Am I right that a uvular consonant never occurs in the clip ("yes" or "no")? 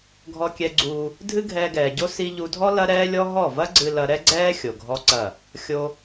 yes